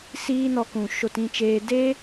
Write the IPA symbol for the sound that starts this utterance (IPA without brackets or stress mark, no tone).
s